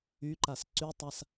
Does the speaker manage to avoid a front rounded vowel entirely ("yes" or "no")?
no